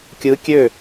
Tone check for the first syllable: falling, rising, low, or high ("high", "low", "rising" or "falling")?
rising